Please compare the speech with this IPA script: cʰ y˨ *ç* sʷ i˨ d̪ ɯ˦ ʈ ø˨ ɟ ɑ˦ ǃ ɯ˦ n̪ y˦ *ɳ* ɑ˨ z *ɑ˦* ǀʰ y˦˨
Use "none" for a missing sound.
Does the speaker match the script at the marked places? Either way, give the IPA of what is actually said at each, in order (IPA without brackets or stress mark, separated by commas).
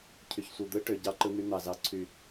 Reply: ç, n̪, ɑ˨